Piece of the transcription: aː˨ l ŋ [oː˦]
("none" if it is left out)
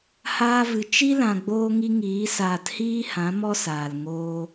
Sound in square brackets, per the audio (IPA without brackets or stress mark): oː˦